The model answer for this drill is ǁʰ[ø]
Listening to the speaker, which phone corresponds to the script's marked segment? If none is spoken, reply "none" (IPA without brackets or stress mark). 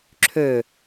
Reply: ø